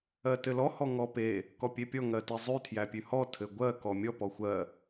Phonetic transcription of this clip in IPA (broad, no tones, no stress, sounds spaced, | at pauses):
ɜ t ɘ l ɔ h ɔ ŋ ɔ p e | k ɔ pʲ e pʲ ɔ ŋ ɜ t e zˤ ʉ tʰ j æ pʲ ʉ h ɔ tʰ ɘ ɡʷ ɜ k ɔ mʲ ɔ p ɔ xʷ ɜ